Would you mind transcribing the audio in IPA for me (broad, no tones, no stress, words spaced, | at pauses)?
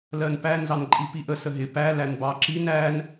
lɜnpæ nzɑnǃʼipiʔə səɦɪ pæ lænbɑǁin æn